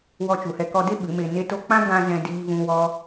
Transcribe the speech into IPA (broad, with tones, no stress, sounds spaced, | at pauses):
w ɔ˧ t͡ʃ u˨ h ɛ˧ k ɔ˧ d e˦ ɓ ɨ˨˦ m e˧ n e˦ t o˦ k͡p ã˦ ɡ ã˧ z ɛ̃˧ d iː˧ v ũ˧ w ɔ˧